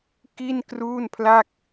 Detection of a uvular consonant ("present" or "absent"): absent